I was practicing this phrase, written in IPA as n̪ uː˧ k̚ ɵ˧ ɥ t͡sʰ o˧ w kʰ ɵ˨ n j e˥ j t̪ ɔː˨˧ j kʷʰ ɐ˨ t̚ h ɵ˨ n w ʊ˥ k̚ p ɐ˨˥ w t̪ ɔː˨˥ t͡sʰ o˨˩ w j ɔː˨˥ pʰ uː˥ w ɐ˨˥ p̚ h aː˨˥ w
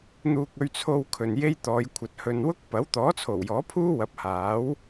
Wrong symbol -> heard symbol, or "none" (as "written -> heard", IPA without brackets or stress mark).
none